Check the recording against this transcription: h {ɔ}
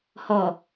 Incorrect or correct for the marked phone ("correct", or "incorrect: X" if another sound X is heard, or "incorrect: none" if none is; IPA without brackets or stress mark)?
correct